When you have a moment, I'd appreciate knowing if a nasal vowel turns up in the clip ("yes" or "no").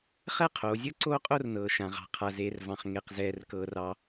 yes